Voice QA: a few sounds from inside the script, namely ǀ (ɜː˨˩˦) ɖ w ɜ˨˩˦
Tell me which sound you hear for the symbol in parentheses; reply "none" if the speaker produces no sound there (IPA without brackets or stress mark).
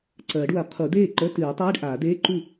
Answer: ɜː˨˩˦